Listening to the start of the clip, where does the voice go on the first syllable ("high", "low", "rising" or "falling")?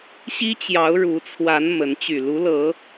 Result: high